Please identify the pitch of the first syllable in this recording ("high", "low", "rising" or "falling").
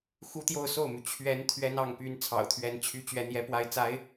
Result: high